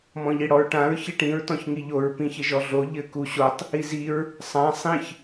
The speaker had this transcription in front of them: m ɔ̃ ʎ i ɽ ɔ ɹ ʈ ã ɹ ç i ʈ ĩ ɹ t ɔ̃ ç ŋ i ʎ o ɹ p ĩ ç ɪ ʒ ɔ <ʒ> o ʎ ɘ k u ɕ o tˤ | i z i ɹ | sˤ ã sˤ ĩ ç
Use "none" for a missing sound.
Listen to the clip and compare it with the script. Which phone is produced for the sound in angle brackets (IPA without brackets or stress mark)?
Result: ɮ